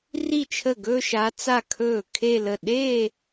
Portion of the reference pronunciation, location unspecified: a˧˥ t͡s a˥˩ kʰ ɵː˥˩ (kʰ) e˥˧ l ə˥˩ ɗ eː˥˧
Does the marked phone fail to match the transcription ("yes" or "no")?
no